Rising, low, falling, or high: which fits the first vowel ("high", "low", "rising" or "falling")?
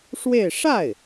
falling